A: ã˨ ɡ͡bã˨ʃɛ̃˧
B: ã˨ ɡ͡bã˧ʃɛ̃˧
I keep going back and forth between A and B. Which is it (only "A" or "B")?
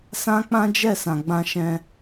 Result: B